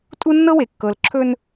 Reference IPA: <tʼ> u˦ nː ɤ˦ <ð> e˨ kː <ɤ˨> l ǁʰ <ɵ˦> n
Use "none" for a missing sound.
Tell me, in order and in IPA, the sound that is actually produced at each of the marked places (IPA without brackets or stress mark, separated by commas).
tʼ, w, ɤ˨, ɵ˦